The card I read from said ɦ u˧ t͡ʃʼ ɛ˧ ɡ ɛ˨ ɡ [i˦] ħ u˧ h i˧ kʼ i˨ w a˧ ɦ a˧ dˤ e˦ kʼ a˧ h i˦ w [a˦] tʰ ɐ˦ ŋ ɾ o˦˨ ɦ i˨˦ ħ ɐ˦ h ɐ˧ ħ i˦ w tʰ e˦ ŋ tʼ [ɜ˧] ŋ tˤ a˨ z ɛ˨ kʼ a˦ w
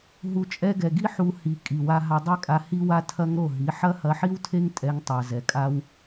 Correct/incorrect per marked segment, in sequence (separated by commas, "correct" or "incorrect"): correct, correct, incorrect